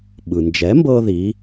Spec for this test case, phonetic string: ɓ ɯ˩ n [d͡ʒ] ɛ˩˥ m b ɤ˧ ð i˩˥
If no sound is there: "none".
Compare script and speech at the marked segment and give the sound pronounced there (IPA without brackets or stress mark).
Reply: d͡ʒ